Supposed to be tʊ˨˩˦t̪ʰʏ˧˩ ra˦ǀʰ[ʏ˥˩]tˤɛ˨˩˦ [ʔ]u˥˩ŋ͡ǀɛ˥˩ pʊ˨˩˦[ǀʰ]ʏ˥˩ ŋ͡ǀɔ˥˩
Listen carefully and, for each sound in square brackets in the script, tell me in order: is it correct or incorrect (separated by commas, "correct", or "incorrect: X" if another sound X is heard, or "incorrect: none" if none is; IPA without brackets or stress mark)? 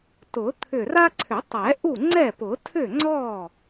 incorrect: ʏ˨˩˦, correct, incorrect: tʰ